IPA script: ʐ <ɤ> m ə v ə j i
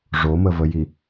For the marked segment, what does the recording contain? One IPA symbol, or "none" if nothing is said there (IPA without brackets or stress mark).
o